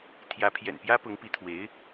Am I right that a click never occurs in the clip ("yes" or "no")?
yes